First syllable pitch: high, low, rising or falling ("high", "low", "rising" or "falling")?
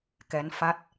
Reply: rising